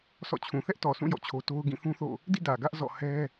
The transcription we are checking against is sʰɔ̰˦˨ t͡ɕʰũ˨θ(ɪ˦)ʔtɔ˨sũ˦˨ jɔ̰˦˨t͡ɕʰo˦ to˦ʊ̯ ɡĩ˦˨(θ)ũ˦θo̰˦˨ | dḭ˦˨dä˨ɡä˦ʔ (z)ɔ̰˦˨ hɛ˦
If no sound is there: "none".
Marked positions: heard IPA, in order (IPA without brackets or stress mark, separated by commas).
ɛ˦, θ, z